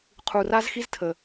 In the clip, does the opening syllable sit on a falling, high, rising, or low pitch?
low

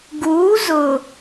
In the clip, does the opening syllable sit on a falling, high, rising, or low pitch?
rising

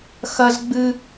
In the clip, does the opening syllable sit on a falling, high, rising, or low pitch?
high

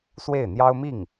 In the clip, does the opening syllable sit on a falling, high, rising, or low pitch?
falling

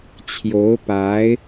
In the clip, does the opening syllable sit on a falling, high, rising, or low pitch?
rising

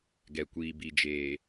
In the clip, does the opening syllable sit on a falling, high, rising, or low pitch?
low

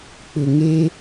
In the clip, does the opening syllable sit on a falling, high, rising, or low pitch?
low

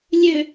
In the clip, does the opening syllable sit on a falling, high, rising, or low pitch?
low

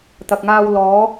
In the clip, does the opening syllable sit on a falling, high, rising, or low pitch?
low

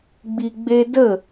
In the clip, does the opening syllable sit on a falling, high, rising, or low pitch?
low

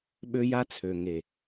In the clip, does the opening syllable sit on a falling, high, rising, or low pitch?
high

